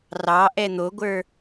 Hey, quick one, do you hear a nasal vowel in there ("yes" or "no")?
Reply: no